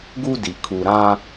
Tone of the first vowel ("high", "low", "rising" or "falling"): high